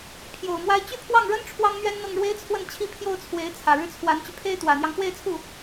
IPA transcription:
pʰ j o˨˩ ʊ̯ m w a˥ ɪ̯ t͡ɕ y˥˧ pʰ w ɑ˥˩ ŋ ɻ ə˥ n ʈ͡ʂʰ w ɑ˥ ŋ n̪ ɥ ɛ˥ n n̪ ɤ˥˩ ŋ ɻ w e˥ ɪ̯ t͡sʰ w ə˥˩ n t͡ɕʰ i˥ pʰ j o˥˩ ʊ̯ t͡sʰ w e˧˥ ɪ̯ t͡sʰ ä˨˩ ɻ ɻ̩˥˩ t͡sʰ w a˧˥ n t͡ɕ y˧ pʰ e˥ ɪ̯ t̪ w ä˨˩ n̪ j ɑ˦ ŋ x w e˥˧ ɪ̯ t͡sʰ u˥˩

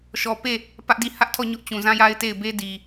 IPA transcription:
ʃ ɔ˨ p e˦˨ | p ä˦ ʔ d i˦˨ h ä˦ ʔ tʰ ɔ˦˨ ɲ ʊ˦ ʔ t͡ɕ ũ˨ z ã˦ j a˦ ɪ̯ t e˦˨ ɪ̯ b e˦ d i˨

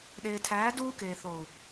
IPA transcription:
ɗ eː˨ tʰ æː˨˦ d uː˦ k eː˨ θ o˨ u̯

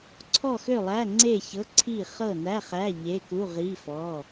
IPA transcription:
ǀʰ ɔ˥˨ x ø˥˨ lˠ æ˧˥˧ ŋ͡ǀ e˥˨ ç ɤ˧˥˧ ǀʰ i˥˨ χ ɤ˥˨ n æ˧˥˧ χ æ˧˥˧ ʎ e˧˥˧ k u˧˥˧ ʁ i˧˥˧ f ɔ˧˥˧

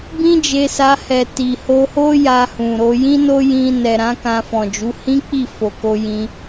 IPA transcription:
b ĩ˦ d͡ʒ e˧ s a˧ h ɛ˨ t i˨ h o˧ h o˦ j a˧ h ũ˨ ɾ o˧ j ĩ˦ n o˦ j ĩ˧ n ɛ˨ ɾ ã˨˦ k ã˧ f ɔ̃˨ d͡ʒ u˨˦ h ĩ˦ k͡p i˦˨ f o˨ k o˧ j ĩ˧

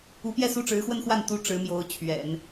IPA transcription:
u˧˥ p j ɛ˥˧ s u˥˩ ʈ͡ʂ ɻ̩˧˥ x w ə˥˧ n x w a˥˩ n t̪ u˥ ʈ͡ʂ ɻ̩˧˥ m j o˧˥ ʊ̯ t͡ɕʰ ɥ ɛ̰˨˩˦ n

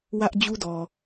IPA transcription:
w ä˦ ʔ d͡ʑ u˦ d ɔ˨

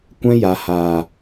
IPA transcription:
kʷ ɛ̃˧ j a˨ h aː˨

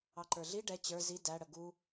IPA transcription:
ɑ ǃ ə˞ ɮ i ɖ ɛ t͡ɕ ə˞ z i d æ ɽ ə ɡ u

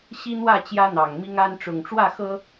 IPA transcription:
ɕ i˦ n̪ w ä˥˨ t͡ɕ j ä˦ n̪ ɑ˨˩ ŋ m i˦ ŋ a˦ n ʈ͡ʂ ʊ˨˩ ŋ ʈ͡ʂ w ä˥˨ x ɤ˦

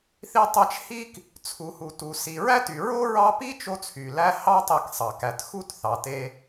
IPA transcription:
θ i˦ tˤ æ˦ t͡ʃ h i˥ k | t͡sʰ u˨ h u˨ t u˨ s i˨ ɹ æ˥ t y˨ ɹ o˥ ɹ ɑ˦ p i˥ t͡ʃ o˥ t͡sʰ y˩ l æ˦ h ɑ˥ tˤ i˨ k sˤ ɑ˩ k æ˩ t x u˥ t θ ɑ˩ t e˦

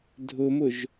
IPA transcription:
dʱ ʊ m ʊ ʒ

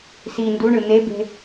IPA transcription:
s i n d u ɳ ɯ n̪ e b e̤

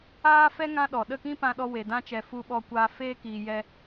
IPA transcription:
aː˦ f ɛ˦ ŋ ã˦ ɗ ɔ˨ ɗ ə˦˨ k ĩ˦ p ã˧ ɗ ɔ˧ w e˨ d ã˧ t͡ʃ ɛ˨ f u˧ ɓ ɔ˧ kʷ aː˧ f eː˦ k iː˧ j ɛ˧

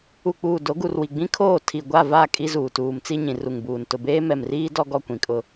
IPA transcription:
u˨ k͡p uː˨ d o˨˦ ɡ u˨ r w i˨ ɡ͡b ĩ˦ kʰ oː˦˨ tʰ i˨ ɡʷ a˦˨ v a˦˨ kʼ i˦ z uː˨ t uː˨ m t͡s i˦ ɲ ĩ˨ r u˨ ŋ b uː˨ n t ʊ˨ b eː˦ m ɛ˨ m r iː˦ d ɔ˦ ɡ ɔ˦ kʷ ĩ˨ kʼ ʊ˦

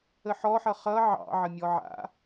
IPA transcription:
ə ħ ɔ ħ ʌ χ ʌ ʕ ɑ̰ ʕ ə mʲ ɔ ʕ a̰

